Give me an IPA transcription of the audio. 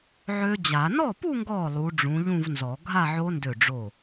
ʕ ø˦˥ d͡ʑ a˨˩˦ n ɔ˥˩ p u˥˧ ŋ ɡ ɔ˧˩ lˠ u˨˦ ɖ͡ʐ ũ˨˦ ʎ ũ˥˧ v n z ɔ˨˩˦ ɡʱ a˥˧ ʕ o˦˥ n d ø˧˩ ɖ͡ʐ o˧˩

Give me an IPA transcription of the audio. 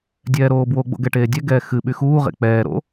dʲ ɛː ɾ oː b w o ɡ͡b o̰ ɡ ɛ ʈ eː dʲ ɛ ɡ ɛː x ɨ ɓ y x uː ʁ ḛ k͡p ɛː ɾ o̰

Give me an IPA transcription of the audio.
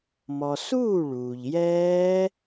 m ɔ˩ s uː˥˩ ɭ uː˩ ʎ j ɛː˦˥

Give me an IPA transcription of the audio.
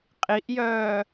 qʼ i ʔ j œː

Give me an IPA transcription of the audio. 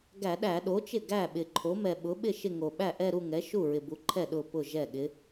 ɡ æ˧˩˧ ɗ æ˧˩˧ ɗ o˩˥ t͡ʃ ɪ˥˩ ɡ æ˥˩ ɓ ɪ˨˩ ǃʰ o˩˥ m ɛ˨˩ ɓ ʊ˩˥ ɓ ɪ˥˩ ʃ ɪ˥˧ ŋ o˨˩ ɓ æ˥˩ ʔ ɛ˥˧ ɾ u˥˧ ŋ ɛ˩˥ ʃ u˥˩ ɹ ɪ˨˩ b u˩˥ ǃʰ ɛ˥˩ ɗ ʊ˥˩ p ʊ˥˩ ʒ ɛ˥˩ ɠ ɪ˧˥

